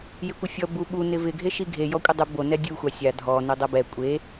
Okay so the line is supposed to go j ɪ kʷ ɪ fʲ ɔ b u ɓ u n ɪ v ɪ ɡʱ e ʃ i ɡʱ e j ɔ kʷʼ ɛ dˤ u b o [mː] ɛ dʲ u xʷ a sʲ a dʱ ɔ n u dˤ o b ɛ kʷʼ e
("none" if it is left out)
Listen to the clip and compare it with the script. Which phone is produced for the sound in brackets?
n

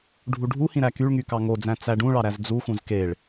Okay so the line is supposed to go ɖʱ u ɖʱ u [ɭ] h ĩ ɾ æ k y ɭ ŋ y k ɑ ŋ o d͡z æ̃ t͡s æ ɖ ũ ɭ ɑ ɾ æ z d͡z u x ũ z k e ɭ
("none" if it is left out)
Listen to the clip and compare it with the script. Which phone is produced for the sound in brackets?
none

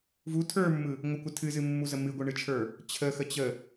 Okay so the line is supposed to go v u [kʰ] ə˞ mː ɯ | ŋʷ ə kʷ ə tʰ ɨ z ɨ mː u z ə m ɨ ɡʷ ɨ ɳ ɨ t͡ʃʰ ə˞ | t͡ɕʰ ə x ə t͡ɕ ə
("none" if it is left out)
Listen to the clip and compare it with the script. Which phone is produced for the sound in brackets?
tʰ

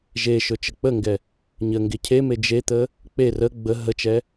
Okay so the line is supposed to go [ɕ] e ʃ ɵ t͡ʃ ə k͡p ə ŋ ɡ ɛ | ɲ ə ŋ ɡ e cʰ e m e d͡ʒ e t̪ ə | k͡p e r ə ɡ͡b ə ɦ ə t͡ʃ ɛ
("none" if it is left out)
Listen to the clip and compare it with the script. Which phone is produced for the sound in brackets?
ʒ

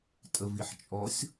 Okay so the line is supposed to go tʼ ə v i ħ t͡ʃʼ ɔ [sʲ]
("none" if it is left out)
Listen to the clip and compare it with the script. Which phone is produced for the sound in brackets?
sʲ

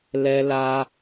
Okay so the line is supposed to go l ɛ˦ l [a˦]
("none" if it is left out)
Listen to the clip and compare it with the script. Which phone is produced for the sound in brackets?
a˦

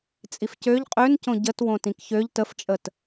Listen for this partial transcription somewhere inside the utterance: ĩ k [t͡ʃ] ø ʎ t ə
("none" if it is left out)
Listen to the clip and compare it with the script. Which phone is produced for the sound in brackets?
ç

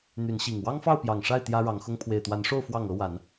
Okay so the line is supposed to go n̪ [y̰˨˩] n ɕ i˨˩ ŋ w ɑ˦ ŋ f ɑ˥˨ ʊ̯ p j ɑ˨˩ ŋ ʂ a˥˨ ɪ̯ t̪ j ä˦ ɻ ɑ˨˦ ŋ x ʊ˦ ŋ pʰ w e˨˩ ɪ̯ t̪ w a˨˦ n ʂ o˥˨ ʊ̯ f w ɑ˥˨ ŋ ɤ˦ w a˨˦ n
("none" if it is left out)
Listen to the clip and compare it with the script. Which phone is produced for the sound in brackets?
y˨˦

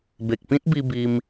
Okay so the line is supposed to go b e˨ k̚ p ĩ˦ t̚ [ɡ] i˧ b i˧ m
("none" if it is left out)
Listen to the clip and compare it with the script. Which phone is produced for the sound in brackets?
b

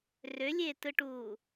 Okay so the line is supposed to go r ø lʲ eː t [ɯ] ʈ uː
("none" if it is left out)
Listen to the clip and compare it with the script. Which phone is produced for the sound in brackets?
ɯ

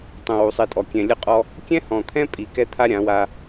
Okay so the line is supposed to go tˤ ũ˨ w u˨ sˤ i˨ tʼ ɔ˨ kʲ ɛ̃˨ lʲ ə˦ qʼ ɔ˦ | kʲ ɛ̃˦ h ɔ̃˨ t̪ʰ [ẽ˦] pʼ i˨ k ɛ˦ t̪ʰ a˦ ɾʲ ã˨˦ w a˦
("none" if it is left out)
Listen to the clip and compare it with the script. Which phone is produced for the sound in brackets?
ɛ̃˦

